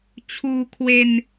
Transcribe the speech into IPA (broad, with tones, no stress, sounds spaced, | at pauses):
t͡ɕʰ uː˧ kʰ w e˧ n